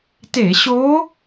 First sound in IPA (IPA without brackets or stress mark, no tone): t